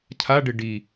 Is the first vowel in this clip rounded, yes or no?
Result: no